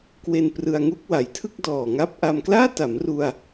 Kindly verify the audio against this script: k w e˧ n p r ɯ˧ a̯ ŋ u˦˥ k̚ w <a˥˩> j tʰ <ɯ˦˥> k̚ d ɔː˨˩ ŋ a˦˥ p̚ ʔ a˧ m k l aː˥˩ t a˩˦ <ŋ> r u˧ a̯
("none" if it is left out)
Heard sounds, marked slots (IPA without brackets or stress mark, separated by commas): a˩˦, ɯ˥˩, m